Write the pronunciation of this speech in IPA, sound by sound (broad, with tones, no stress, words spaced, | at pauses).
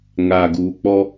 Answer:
ŋaː˨ɡuː˨k͡pɔ˦